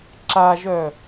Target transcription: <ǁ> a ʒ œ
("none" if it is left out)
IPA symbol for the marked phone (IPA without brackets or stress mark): ǁ